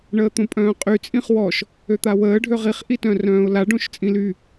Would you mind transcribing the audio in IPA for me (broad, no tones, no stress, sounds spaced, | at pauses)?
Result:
ɳ əː t̪ õ pʼ œ̃ː qʼ y t͡sʼ ĩ χ w ɔ ʃ | ø t̪ a w əː ɖʱ ø ʁ i χ ʔ i t œ̃ r œ̃ː ʊ̯ l a ɖ õ ʃ t͡sʼ ĩ l y